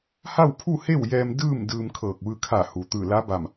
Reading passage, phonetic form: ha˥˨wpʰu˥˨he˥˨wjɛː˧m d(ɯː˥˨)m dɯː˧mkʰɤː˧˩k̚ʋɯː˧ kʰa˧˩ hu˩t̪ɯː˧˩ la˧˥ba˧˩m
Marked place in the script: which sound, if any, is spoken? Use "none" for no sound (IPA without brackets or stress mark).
ɯː˥˨